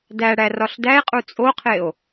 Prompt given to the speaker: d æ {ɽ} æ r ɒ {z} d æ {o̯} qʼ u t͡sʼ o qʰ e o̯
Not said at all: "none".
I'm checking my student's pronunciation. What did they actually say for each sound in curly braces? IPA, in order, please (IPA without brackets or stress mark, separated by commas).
ɽ, ɬ, e̯